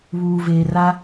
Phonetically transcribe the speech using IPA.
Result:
βuː˨veː˨ra˦

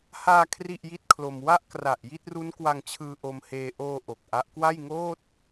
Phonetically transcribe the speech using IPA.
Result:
haː˧ kʰri˥˩ʔji˥˩t̚kʰlo˧m wa˥˩ʔkra˨˩ʔ ji˥˩t̚ru˦˥nkwa˧ŋt͡ɕʰɯː˧ ʔo˧mheː˧ ʔoː˧ ʔo˨˩k̚ʔa˦˥ʔ kwa˥˩jŋoː˥˩t̚

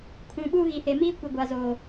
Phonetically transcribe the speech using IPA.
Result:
kʰũ˨ɓuː˦ ɣi˨he˨miː˦kʷi˨ ɡʷa˨zoː˨

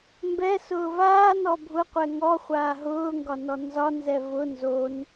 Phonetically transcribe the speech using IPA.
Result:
mbɛ sʊːvaː nɔbʱʊqʷɛ ŋɔχʷaː ɦʊːŋɡɒnɔ nzɒnzɛ vʊ nzon

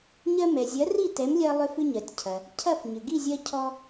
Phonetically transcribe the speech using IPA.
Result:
ɲɜ˧mɛ˩zʲɐ˩˥ ri˥˩tɛ˩˥mlʲɜ˧ lˠʏ˧fʏ˧ɲɜ˩tʲcʰɐ˩ | cʰɐ˥˩fɲʏ˩ ɡi˥˩zʲɜ˧ cʰɔ˧

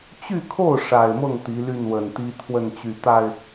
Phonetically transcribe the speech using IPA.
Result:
t͡ɕy˥˧kʰo˥˩ʊ̯ ʂa˨˩ɪ̯mɤ˥˩ŋ t̪i˧˥ly˥˩n wə˨˩nt̪i˥ t̪ʰwə˥˩nt͡ɕy˨˩t̪a˥˩ɪ̯

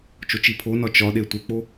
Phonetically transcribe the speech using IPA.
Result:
t͡ʃot͡ʃipʰonɒ t͡ʃɒɗe tʷek͡po

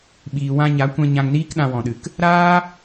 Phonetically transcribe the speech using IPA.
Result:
ɓiː˨wã˧ɲa˨˦ kʷɛ̃˧ ɲã˧ŋniː˦k ɗã˧wɔ̃˨ɗɨ˨k | ɾaː˦

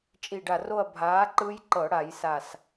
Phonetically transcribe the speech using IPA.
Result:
t͡ʃʼi˧˩ɖa˧˩ro˥˧ɐ̯ bʱaː˨˥ ǃɯ˦˥jǃɤ˧˩˧ɽa˧˩˧j sa˧˩s

